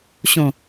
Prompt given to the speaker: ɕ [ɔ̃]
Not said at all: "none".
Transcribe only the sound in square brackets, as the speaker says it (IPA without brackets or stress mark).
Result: õ